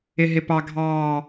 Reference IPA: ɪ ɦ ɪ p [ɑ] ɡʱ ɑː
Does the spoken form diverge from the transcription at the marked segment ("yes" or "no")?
no